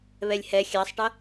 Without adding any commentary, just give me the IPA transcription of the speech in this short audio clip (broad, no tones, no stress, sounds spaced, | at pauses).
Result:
β ɛ lʲ h ɛ xʲ ɑ sˤ ʈ ʌ